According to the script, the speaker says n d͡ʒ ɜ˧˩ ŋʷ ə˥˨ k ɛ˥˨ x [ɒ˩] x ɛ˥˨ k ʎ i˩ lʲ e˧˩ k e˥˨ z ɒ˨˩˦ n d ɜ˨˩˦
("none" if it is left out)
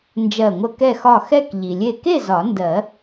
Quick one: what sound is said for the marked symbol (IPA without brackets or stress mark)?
ɒ˥˨